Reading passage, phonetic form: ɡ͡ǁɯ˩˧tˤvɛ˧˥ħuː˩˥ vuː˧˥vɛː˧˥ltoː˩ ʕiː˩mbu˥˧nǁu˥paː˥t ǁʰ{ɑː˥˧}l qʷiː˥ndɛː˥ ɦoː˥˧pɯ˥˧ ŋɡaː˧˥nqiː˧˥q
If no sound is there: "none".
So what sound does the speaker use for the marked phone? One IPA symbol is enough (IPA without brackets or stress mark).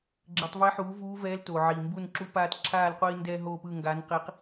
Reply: aː˥˧